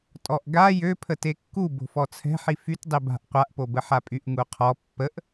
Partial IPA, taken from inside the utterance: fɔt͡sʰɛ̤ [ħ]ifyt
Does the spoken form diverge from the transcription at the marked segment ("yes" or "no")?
no